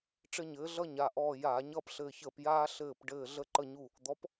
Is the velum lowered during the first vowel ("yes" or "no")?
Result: no